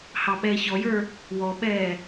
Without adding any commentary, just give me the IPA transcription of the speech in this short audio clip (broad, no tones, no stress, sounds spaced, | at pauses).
h ɑ ɓ ɛː ç ɔ j ə˞ | w ɔ ɓ ɛː